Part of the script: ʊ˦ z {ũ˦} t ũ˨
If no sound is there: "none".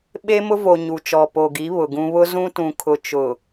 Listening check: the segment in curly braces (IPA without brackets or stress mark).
ũ˦